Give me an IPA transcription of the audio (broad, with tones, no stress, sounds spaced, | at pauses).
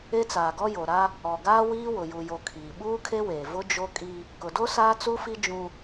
e˦ t͡s aː˨ ɡ ɔ˦ j o˨ ɾ a˦ | ɔ˨ ɡ aː˦ w iː˦ w ʊ˨ j u˨ j o˨ kʰ iː˨ ɓ uː˦ kʰ e˦ w eː˨ v ʊ˦ d͡ʒ o˦ kʼ i˦ | k ʊ˨ d o˦ s aː˦ t͡s u˦ f i˦ d͡ʒ ũ˦